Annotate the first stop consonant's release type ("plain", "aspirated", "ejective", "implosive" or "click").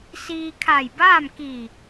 aspirated